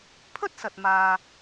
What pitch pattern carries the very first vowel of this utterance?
high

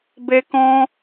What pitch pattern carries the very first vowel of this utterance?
high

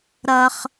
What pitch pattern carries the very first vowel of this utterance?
high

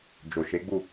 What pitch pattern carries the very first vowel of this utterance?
low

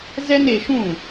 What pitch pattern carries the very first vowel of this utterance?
high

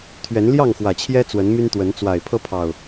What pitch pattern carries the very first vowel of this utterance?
rising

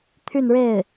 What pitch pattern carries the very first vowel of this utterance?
falling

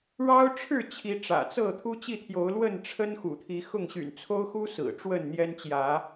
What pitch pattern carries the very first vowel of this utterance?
high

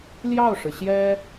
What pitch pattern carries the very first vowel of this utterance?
falling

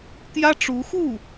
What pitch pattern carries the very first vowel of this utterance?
high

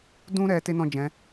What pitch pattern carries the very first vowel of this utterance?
high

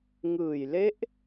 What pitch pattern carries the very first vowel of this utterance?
low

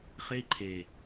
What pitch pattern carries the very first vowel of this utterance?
high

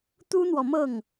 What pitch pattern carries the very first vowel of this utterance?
high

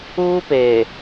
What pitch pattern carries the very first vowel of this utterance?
high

